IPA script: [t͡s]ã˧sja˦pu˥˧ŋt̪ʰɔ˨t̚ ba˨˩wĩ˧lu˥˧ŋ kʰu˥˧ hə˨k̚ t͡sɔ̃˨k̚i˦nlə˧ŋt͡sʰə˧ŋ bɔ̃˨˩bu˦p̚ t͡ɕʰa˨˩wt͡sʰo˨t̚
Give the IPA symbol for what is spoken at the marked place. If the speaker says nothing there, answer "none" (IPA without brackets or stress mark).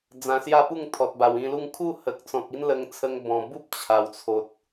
d͡z